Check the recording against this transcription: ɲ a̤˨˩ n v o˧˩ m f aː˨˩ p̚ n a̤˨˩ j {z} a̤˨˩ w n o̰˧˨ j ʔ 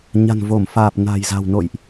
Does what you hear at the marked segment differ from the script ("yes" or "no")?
no